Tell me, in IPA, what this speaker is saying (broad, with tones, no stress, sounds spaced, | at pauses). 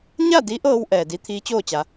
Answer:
ɲ a˥˨ d i˧˥ ʔ ɤː˧ w ʔ ɛː˩ d i˧˥ t̪ʰ iː˧˥ t͡ɕ oː˥˨ t͡ɕ a˩˧